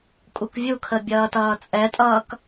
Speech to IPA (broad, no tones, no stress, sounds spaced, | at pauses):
kʼ u k vʲ u kʰ ə bʲ ʌː t ʌː t͡sʼ ɛ tʼ ʌː k